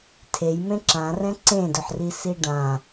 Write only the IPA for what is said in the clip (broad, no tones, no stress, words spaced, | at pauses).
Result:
tʰejmẽ ǁã rɛ̃ǀẽdɵħri siɖã